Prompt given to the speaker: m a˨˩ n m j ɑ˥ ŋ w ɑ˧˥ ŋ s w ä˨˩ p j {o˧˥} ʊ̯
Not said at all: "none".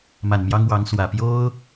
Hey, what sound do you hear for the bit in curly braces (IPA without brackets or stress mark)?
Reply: o˥